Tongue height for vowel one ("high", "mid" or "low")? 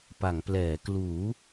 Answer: low